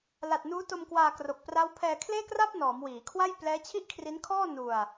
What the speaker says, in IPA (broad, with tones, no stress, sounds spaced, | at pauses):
l a˨˩ t̚ n uː˦˥ t o˧ m k w aː˧ k r o˨˩ k̚ p r a˦˥ w pʰ ɛː˧ kʰ l eː˥˩ k r a˥˩ p̚ n ɔː˩˦ m w iː˩˦ kʰ w a˥˩ j p l ɛː˦˥ t͡ɕʰ i˥˩ ʔ kʰ r i˦˥ n kʰ ɔː˥˩ n u˧ a̯